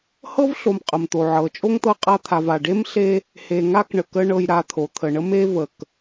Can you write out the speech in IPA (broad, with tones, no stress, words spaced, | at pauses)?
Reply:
hɤ˥vɬo˨m qʼə˩mt̪o˩ʕɤ˩ t͡ʃʼo˥ŋt̪ɤ˦ qʼa˦t̪ʰa˨va˩ ɖe˥mɬe˦ | he˨ŋa˥kɳə˩kə˦ ɳɤ˨jɾa˨ t̪ʰo˩t̪ʰə˩ɳə˥ me˥ və˩k